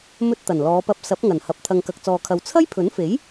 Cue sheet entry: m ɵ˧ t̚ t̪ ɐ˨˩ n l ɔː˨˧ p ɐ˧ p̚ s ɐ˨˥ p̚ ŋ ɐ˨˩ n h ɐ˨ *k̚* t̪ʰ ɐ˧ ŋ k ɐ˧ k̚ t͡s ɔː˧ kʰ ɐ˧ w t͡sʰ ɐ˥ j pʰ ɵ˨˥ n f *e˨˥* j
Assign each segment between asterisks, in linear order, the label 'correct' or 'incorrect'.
incorrect: p̚, correct

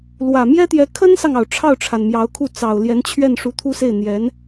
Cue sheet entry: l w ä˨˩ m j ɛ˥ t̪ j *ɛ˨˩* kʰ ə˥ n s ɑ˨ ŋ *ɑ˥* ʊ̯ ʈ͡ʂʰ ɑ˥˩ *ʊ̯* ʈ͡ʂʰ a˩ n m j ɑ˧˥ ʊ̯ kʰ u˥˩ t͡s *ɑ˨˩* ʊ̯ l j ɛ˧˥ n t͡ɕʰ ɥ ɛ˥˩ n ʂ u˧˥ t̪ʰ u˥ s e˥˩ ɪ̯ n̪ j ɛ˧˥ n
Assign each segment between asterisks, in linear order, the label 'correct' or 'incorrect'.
incorrect: ɛ˧˥, incorrect: ɑ˩, correct, correct

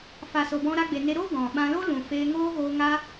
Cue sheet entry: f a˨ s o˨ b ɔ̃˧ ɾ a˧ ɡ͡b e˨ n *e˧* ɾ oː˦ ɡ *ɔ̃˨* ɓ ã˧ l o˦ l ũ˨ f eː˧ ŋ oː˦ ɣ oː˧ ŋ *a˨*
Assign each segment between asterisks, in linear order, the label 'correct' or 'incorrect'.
correct, correct, incorrect: a˦

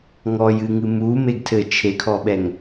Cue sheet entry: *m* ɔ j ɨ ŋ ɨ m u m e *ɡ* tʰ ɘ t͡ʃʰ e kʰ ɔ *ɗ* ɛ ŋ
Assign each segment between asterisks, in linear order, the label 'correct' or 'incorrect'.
incorrect: ŋ, correct, incorrect: ɓ

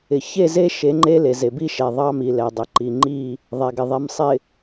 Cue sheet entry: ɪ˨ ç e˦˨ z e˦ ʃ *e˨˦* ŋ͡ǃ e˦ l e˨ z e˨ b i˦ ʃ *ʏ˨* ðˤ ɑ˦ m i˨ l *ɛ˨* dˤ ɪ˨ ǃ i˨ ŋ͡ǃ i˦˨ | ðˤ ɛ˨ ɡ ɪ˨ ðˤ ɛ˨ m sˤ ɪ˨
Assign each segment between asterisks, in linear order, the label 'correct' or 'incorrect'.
correct, incorrect: ɛ˨, correct

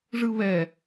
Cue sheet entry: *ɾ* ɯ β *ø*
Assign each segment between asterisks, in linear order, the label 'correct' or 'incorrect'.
incorrect: ʐ, incorrect: ɛ

